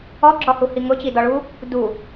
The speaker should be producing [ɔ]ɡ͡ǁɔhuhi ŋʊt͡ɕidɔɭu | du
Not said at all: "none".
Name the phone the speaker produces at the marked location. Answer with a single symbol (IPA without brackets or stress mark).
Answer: ɔ